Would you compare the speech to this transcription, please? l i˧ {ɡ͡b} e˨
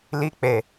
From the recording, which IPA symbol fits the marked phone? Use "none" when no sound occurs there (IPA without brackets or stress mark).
k͡p